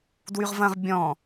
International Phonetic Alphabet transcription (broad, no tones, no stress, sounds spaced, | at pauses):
d w y ʁ v ɐ̃ ʁ bʲ ɔ̃